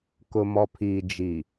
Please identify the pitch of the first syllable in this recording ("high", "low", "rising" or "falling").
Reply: low